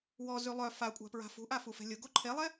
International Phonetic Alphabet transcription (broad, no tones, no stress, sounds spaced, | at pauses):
w ɔ z y lˠ œ f a kʷʼ a̤ p ɹ a̤ f ṳ ʔ a f u f ɛ̤ lʲ ʊ ɡ o ǃʰ e lˠ ɛ